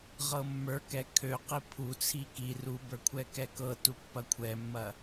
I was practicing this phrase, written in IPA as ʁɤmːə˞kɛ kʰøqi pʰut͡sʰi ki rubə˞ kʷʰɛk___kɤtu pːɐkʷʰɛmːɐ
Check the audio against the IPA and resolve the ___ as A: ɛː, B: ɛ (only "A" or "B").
B